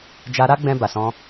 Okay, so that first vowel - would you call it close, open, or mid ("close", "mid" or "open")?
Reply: open